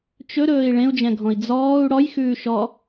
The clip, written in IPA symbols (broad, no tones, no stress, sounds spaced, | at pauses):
t͡ʃ ɵ ɾ ɵː i̯ ɭ ẽ u̯ d͡ʒ ɛ̃ ɡʱ ɔ̃ i̯ d͡z ɔː u̯ ɽ ɔ j x ʉː ʃ ɔ